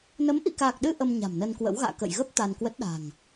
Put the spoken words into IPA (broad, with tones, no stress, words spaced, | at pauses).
nə˨˦mʔḭ˧˨kaː˨˩k̚ɗɨ˧ ʔə˧m ɲa̤˨˩mnə˧nkwə̰˧˥w ɣa̰ː˧˨ kə̰˧˨jɣə˦˥p̚ t̪a˧nkwə˦˥t̚ ɗa̤˨˩ŋ